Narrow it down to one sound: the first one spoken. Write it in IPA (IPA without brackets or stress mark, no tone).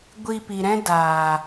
ɡʷ